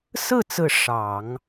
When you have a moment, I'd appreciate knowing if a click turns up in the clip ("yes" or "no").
no